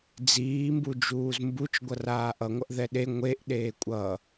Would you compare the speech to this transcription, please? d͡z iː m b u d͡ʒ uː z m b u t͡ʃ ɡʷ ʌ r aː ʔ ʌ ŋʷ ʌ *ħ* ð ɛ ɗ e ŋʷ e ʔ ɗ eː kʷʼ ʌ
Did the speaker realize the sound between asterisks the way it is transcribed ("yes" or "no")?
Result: no